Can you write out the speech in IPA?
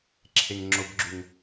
ǁʰ e ŋ ŋ͡ǁ ʊ b ɡ͡ǁ ʉ ŋ

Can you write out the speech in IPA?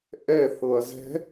ʔ ɛ θ ɤ ɐ̯ z ɛ̤

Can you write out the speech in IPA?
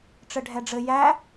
ʈ͡ʂ ɘ ɖʱ ɛ ɖ͡ʐ ɘ j æ

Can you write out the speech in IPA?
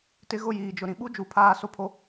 t ɪ˦ ɣ ʊ˦˨ j iː˨ d͡ʒ ʊ˨ ɾ ĩ˨ ɓ u˦ d͡ʒ u˨ pʰ aː˦ s o˦ pʰ o˦

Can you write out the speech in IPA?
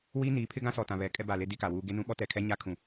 w iː˦ n iː˨˦ pʰ ɪ˦ ɡ ã˦ s ɔ˨ t ã˨ β ɛ˨ kʼ ɛ˦ b a˨ l e˦ d i˦ k a˨ w uː˦ ɡ e˦ n ũ˦ ɓ ɔ˦ t ɛ˨ kʰ ɛ˦ ɲ a˦ kʰ ũ˨

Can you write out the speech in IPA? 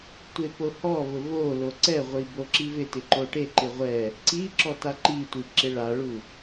tʷ e p o h ɔ v ʊ v o l o ǀ ɛ ʁʷ i b o ǁ i v ɪ t ɪ ǃ o ʈ e ǃ ɪ ʁʷ ɛ | ǀ i ǁ ɔ t a ǃ i tʷ i ǁ ɪ ɭ a ɭ u

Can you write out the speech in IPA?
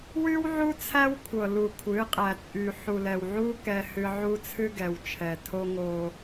w y˦ w ʕ u˦ t͡sʰ æ˦ w kʷʰ ɤ˨ l u˨ kʷʰ ɨ˨˦ qʼ æ˨ t͡sʼ y˨ ħ u˨ l ɛ˨ w ʕ u˦ k ɛ˦ h ɨ˦ ʕ u˦ t͡sʰ ɨ˦ ɡ ɛ˨ w t͡ʃʰ ɛ˨ tʰ o˦ ŋ o˦

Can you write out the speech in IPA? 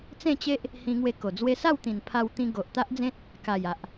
t͡s ẽ˥˧ t͡ɕ e˦ ʔ | h ĩ˧ ŋ w e˧ k o˨˩ d͡z w e˧ s a˥˧ w t̪ ĩ˨˩ n pʰ a˧ w t̪ ĩ˧ ɡ o˨ ʔ t̪ a˦ ʔ d͡z ẽ˦ t̚ | k a˨˩ j a˨ ʔ

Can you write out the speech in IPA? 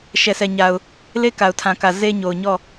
ʃ ɛ˨ s ɛ˨ ɲ a˨ ʊ̯ | l e˦ k a˨ ʊ̯ tʰ ã˨ k ä˨ z e˦ ɲ o˨ ʊ̯ ɲ ɔ˦˨

